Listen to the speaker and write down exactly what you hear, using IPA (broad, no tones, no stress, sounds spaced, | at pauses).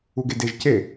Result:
u ɡ e d e ʒ c e